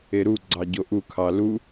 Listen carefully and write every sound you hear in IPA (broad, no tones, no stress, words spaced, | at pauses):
eɾuɡ͡ǀɑ ɟoʔukʰɑ lu